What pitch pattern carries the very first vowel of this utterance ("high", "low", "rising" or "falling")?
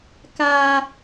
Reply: high